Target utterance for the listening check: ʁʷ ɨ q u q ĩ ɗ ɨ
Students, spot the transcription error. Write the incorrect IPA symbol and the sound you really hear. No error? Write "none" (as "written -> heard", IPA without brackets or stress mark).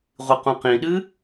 u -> ũ